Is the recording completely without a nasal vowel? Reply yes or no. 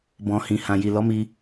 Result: no